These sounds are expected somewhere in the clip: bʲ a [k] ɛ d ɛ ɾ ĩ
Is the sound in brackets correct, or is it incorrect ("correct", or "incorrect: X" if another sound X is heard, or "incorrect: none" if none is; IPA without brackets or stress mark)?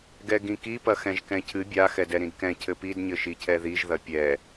incorrect: x